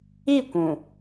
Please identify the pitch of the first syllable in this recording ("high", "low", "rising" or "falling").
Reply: falling